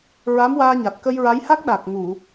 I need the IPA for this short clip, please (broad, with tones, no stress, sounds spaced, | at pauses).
ɹ a˧˥ m w aː˧ ɲ a˨˩ t̚ k ə˧ j ɹ a˧˥ j h a˦˥ k̚ ɗ a˨˩ k̚ ŋ u˨˩˨